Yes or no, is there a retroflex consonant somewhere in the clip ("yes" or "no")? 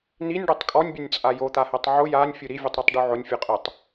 yes